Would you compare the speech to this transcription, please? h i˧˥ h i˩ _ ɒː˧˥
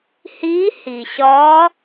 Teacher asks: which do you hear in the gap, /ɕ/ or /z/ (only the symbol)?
ɕ